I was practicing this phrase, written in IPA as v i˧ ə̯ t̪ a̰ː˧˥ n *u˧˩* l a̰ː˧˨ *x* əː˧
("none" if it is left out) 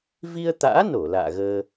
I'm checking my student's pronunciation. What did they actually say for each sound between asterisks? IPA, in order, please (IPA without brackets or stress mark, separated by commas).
o˧˩, ɣ